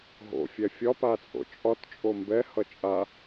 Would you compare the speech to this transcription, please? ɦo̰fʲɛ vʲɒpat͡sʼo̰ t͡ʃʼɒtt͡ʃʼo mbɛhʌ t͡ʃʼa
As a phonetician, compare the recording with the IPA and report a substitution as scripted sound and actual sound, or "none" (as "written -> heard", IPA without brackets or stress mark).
vʲ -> fʲ